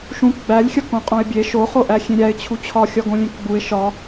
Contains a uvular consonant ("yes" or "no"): yes